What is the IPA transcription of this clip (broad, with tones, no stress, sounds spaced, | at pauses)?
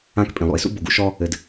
ã˦ k pʼ ĩ˩ lˠ ṵ˩ ɪ̯ s ṵ˥ b o˨ ɡ ṵ˦ ʃ ɔ˦ | ɘ˨ d